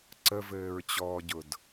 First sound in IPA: ǀ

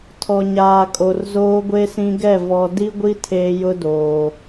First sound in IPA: tʰ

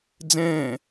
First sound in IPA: d͡z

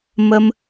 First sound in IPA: m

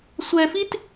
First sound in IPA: sʷ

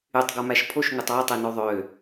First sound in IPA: y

